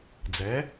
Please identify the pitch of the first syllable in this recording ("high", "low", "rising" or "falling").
rising